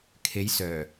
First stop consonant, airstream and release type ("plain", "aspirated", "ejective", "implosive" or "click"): aspirated